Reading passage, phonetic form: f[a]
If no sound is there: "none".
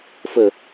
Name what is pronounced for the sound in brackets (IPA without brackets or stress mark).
ə